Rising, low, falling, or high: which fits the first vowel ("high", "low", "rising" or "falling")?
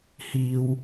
high